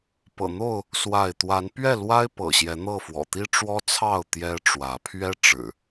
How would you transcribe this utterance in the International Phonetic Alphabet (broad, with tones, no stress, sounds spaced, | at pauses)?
p ɤ̰˨˩ n̪ o˥˨ ʊ̯ | s w a˥˨ ɪ̯ t̪ w a˨˦ n p ɥ ɛ˥˨ l w a˦ ɪ̯ p ɤ̰˨˩ ɕ j ɛ˨˦ n̪ ɤ˥˨ f w ɔ̰˨˩ t̪ i˦ ʈ͡ʂ w ɔ˦ t͡sʰ ɑ˥˨ ʊ̯ t̪ j ɛ˦ ʈ͡ʂ w ä˨˦ pʰ ɥ ɛ˦ ʈ͡ʂ ɻ̩˨˩